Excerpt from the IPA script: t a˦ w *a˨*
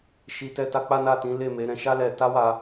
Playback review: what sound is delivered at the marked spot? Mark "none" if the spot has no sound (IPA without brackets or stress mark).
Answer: a˧